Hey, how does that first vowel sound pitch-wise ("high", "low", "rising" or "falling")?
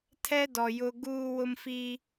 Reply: high